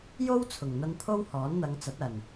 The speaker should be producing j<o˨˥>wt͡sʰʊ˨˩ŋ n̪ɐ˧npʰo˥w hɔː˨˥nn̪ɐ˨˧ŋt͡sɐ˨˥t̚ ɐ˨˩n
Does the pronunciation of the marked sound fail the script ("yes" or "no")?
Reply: yes